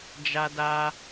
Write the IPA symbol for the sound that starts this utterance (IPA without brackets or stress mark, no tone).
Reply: d͡ʒ